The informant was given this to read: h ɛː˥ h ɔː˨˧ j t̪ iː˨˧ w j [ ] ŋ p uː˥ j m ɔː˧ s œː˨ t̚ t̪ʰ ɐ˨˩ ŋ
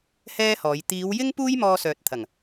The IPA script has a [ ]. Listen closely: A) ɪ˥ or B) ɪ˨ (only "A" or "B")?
A